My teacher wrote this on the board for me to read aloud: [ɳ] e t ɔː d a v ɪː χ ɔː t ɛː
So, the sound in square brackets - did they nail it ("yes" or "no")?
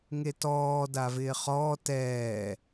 no